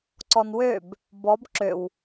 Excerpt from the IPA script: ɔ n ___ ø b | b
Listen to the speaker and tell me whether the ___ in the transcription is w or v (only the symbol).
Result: w